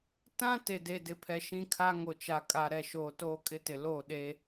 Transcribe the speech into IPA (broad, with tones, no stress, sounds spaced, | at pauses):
t ã˦ t e˨ d e˨ d ɪ˨ pʰ ɛ˨ ʃ ĩ˦ kʰ a˦ ŋ o˨ t͡ʃ a˨ kʼ a˨ ɾ ɛ˨ ʃ oː˨ t oː˦ kʼ ɪ˦ t ɪ˨ l o˦˨ ɗ e˦